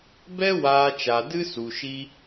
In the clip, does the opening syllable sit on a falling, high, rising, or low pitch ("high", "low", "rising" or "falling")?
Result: high